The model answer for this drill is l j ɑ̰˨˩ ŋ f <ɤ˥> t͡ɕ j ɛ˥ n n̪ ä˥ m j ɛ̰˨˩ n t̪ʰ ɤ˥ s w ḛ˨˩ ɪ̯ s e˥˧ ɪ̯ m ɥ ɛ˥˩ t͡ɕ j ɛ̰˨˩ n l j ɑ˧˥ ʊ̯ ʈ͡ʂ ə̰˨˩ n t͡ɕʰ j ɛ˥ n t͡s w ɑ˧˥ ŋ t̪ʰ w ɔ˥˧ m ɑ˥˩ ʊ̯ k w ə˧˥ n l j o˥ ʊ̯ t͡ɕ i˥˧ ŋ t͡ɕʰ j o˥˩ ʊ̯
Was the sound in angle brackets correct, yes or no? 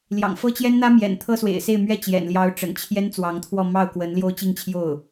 yes